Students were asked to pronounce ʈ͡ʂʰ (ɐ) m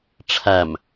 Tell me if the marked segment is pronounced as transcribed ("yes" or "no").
no